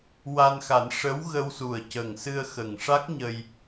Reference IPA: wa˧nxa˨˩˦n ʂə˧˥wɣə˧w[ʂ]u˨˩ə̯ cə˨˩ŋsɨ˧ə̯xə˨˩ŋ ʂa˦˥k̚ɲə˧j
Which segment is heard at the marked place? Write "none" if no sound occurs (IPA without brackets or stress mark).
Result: s